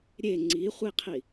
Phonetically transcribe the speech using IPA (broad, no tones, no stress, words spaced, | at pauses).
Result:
ɾʲe ŋ͡ǀiχʷiqʰi